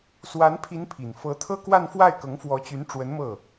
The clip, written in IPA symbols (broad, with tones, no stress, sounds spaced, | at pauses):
s w a˧˥ n pʰ i˧˥ n pʰ i˨˩ n f ɤ˧˥ t̪ʰ ɤ˥ k w a˥˧ n f w a˥˩ ɪ̯ k ɤ˧˥ ŋ f w ɔ˧˥ t͡ɕ y˧˥ n ʈ͡ʂ w ə˧˥ n m ɤ˥˩